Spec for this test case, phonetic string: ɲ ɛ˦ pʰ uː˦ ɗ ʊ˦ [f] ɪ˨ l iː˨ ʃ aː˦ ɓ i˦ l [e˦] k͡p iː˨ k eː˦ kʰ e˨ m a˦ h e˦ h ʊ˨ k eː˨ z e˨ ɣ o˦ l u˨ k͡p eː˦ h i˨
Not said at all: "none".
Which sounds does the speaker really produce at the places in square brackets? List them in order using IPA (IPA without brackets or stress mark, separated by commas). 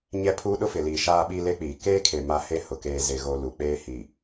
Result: f, e˦